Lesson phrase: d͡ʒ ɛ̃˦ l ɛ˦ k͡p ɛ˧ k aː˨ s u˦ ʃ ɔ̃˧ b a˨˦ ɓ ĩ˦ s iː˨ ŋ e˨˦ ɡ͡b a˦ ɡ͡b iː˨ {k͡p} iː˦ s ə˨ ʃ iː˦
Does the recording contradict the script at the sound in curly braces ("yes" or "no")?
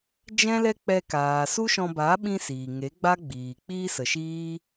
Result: no